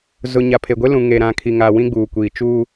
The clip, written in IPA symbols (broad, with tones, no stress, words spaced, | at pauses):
zʊ˨ ɲa˨pʰe˨ɡʷe˦ lũ˨ ŋe˨ɾã˨kʰi˨ ŋa˨ wĩ˦ɡ͡buː˨kʷiː˨ t͡ʃu˦